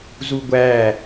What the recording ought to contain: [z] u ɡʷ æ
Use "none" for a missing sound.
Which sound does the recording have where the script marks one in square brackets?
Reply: z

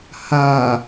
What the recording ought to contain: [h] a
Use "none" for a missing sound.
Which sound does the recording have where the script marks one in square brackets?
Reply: h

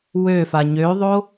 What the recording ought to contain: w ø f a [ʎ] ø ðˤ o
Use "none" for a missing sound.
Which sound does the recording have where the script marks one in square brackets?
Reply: ɲ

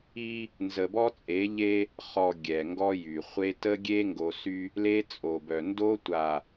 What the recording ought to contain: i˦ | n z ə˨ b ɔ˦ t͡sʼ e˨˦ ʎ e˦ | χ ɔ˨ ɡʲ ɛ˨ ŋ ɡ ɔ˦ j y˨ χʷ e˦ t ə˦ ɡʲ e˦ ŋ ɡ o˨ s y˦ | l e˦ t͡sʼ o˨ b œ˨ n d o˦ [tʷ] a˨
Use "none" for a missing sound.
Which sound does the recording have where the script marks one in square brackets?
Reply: tʷ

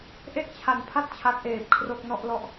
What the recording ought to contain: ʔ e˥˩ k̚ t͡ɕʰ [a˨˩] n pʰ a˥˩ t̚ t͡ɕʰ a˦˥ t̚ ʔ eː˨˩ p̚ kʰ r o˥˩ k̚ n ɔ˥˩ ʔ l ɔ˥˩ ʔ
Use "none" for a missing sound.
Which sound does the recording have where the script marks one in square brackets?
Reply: a˨˩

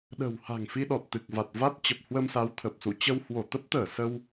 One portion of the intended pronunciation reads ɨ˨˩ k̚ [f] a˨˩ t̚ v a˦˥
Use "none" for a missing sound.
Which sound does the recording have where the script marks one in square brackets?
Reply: v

